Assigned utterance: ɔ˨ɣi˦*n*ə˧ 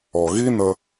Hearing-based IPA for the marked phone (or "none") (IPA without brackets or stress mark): n